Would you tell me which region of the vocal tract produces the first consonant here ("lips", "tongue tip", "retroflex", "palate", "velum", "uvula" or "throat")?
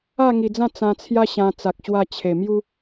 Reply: velum